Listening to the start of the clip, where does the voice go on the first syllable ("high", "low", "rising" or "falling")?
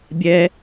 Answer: high